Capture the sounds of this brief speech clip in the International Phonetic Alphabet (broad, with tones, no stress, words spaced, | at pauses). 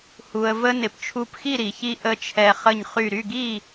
hu˩ə̯və˦ nɪ˩p t͡ʃʰu˧˩pxi˥˨ɾi˩çi˦ ʔə˥˨t͡ʃʰɛ˦ χə˧˩ɲχy˧˩ɾy˥˨ɡi˥˨